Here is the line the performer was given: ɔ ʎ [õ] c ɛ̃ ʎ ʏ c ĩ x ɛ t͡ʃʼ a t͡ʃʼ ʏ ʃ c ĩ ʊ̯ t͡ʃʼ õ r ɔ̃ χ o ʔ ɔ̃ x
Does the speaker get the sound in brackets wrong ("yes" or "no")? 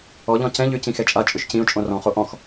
yes